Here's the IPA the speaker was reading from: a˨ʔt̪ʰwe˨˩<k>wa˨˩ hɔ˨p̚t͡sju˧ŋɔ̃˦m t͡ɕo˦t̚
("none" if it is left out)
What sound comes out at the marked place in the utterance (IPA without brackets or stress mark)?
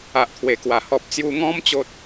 k